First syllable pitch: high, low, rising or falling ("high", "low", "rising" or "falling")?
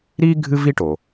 high